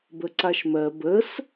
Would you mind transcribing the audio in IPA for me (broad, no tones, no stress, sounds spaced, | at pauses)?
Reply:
b ə ǀ a ʃ m ɜ b ə s